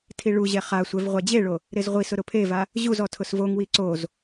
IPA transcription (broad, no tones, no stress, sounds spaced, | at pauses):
tʰ i ɭ u ʑ ɛ χ a sʷ ɛ v ʁʷ a d͡ʑ e ɭ o | ɾ e z ʁʷ i s ʊ ɾ ʊ pʰ e v a | ʑ u z ɔ tʰ ʊ s v o ŋ w i ǀ o z